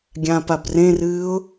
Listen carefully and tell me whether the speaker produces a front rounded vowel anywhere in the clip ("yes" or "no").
no